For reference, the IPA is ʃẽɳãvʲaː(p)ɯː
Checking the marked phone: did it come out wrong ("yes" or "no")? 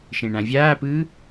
no